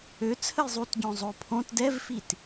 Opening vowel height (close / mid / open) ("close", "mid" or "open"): mid